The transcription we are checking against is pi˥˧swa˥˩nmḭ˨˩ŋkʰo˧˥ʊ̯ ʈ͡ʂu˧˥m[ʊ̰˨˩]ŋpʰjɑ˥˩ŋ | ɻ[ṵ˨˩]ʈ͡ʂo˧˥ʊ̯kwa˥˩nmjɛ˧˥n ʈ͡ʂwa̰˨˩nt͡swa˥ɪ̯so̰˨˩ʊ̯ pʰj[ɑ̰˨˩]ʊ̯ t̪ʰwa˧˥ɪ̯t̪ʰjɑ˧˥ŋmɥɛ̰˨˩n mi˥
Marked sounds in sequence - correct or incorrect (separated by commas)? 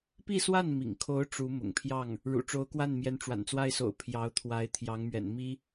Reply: correct, correct, incorrect